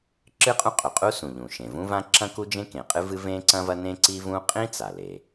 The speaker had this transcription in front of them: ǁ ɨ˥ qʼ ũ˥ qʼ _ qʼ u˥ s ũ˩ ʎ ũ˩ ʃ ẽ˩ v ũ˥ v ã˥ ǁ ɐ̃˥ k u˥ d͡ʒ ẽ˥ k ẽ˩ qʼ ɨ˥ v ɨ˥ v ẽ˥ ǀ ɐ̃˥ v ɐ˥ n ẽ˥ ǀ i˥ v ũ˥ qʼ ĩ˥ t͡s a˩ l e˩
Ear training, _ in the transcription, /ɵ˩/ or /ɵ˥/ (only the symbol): ɵ˩